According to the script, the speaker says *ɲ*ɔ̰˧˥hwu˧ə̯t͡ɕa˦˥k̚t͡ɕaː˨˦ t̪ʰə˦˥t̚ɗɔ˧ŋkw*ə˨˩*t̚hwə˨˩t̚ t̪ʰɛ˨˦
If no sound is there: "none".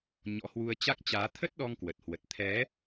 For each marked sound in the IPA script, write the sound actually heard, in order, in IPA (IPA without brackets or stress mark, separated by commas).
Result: ɲ, ə˨˩